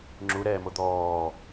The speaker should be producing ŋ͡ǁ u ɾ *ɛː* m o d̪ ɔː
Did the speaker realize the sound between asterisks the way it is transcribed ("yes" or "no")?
yes